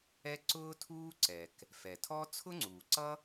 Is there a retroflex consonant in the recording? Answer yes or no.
no